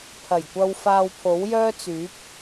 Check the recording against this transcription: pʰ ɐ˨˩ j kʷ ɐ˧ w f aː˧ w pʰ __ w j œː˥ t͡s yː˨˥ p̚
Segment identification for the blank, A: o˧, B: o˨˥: B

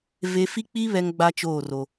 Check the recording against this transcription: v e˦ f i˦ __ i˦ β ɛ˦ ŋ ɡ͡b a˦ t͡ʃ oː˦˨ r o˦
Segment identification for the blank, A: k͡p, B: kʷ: A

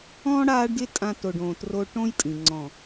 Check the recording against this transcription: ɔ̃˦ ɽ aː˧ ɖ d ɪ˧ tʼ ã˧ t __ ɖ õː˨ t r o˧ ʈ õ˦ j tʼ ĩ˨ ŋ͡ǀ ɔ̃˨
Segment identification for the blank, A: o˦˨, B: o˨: B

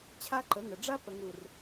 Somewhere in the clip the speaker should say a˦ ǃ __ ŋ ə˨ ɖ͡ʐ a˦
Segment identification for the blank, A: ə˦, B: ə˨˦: B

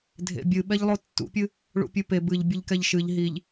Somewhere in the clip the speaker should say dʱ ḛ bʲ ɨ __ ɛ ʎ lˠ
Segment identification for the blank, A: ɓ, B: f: A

